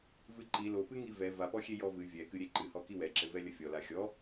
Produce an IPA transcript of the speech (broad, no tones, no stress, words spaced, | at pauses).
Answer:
vɨǃi lopɨŋi vɛ vapɔxʲe jɔvɨ vʲɛkɨ ɾʲeǃɨhɔ kiwɛǁɘvɛ lʲɐfʲɔla xʲɔ